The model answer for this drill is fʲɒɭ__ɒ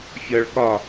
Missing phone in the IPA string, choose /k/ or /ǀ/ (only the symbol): k